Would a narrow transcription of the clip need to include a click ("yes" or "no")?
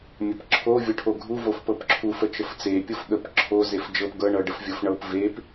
yes